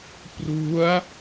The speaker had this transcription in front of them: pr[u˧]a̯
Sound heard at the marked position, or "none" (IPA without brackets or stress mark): u˦˥